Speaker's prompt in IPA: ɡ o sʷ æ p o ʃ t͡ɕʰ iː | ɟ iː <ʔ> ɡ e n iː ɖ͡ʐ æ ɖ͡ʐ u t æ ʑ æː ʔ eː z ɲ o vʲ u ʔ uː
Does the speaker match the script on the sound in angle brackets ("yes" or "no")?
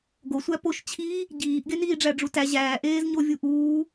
yes